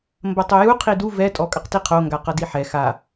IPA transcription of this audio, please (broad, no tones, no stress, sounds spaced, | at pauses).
m b ɐ tˤ o j u qʰ i d u v ɛ tʼ ɔ kʼ ɐ q t i qʰ o ŋ ɡ a q ɐ d i ħ ɛ x a